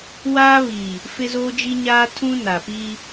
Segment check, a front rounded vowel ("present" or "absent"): absent